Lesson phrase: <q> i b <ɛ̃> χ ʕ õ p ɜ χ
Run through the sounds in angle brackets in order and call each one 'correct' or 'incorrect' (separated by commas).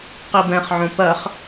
correct, correct